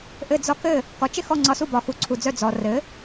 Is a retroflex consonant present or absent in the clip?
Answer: absent